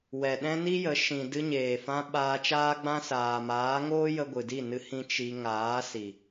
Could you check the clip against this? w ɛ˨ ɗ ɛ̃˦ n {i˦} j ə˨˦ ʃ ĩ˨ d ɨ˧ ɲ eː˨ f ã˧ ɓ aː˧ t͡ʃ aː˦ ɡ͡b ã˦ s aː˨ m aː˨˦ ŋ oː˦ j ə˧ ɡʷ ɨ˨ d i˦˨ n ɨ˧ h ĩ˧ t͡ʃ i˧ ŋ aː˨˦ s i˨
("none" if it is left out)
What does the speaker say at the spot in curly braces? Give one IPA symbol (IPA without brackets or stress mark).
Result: i˦